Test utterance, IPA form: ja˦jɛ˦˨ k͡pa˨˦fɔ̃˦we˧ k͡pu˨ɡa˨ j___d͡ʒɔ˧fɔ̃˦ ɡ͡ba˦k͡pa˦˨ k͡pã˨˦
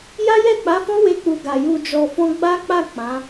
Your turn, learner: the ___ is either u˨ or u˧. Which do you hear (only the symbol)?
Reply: u˧